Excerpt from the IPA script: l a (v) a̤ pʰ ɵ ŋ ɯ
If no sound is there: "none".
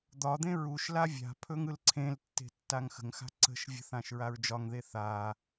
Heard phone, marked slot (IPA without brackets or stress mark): vʲ